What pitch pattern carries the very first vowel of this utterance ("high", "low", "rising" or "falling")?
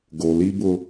low